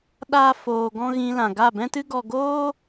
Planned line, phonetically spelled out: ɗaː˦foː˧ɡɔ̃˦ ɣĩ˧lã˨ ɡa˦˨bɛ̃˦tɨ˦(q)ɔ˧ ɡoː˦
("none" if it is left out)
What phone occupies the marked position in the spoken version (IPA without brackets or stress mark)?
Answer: ɡ